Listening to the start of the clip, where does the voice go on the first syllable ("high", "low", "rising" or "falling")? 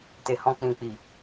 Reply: low